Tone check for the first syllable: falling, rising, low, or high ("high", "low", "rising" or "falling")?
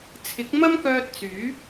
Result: rising